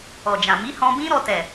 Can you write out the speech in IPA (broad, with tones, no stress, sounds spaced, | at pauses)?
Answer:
ɔ˨ d͡ʒ ã˨ m i˨˦ h ɔ̃˧ b ĩ˦ ɾ ɔ˧ t ɛ˨